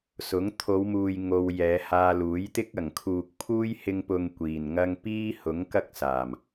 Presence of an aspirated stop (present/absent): present